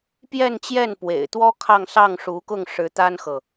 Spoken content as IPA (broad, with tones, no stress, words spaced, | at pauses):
pjɛ˥˧nt͡ɕjɛ˥˩n pwḛ˨˩ɪ̯t̪wɔ˥ kʰɑ˥˧ŋsɑ˥˩ŋ ʂu˧˥kʊ˥˩ŋʂɻ̩˧˥ t̪a˥nxɤ˨